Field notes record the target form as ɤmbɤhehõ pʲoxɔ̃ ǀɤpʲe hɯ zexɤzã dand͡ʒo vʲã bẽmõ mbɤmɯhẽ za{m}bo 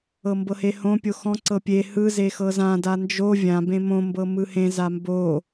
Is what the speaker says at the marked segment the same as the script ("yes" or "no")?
yes